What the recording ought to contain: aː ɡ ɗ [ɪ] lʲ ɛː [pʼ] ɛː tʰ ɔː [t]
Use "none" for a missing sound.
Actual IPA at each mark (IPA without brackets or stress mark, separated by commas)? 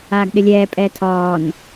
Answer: ɪ, pʼ, n